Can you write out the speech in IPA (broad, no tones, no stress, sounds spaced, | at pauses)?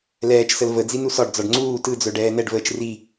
l ɛː t͡ʃ s ə l v ə d͡z i n u s ɒ ɖ d͡z ɒ ɖ ŋ͡ǀ uː t ɯ d͡z œ ɖ ɛː n̪ ɛ ɖ v əː t͡ʃ r i